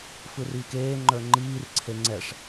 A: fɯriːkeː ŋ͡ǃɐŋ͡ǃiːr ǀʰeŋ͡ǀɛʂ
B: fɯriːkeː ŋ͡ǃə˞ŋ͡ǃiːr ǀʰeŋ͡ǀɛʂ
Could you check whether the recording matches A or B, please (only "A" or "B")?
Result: B